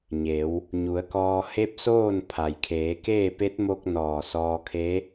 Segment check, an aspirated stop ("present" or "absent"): present